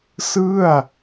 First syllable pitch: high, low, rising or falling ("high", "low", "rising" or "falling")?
falling